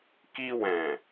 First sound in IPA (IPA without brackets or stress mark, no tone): k